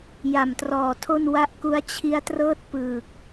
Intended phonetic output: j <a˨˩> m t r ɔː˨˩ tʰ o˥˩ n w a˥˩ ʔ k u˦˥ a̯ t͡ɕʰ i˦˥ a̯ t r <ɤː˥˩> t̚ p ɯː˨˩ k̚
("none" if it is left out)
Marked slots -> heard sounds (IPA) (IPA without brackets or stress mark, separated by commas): a˨˩, ɤː˥˩